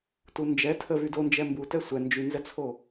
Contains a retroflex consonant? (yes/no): no